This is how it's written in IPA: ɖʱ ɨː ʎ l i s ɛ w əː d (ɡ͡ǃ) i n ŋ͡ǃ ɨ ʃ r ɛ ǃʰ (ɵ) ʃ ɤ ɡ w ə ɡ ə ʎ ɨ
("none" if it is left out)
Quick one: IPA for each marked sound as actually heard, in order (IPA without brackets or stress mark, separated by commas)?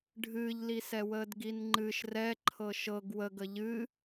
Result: ɡ, ɤ